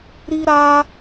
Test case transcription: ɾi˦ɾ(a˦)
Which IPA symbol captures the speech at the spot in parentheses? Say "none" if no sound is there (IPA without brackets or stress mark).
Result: a˦